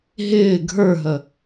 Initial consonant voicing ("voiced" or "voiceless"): voiced